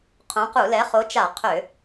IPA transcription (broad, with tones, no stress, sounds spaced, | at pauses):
qʰ õ˨˥ q u˧˩˧ l ɛ˨˥ χ o˨˥ t͡ʃ a˧˩˧ qʰ ø˧˩˧